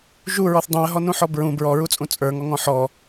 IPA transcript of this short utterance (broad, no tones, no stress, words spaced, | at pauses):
ʒuɹɔθ dˤũə̯ɦɔnũħɔ bɹũ bɹɔɹut͡sʼũ t͡sʼə˞ŋɔŋɔ̃ ħɔ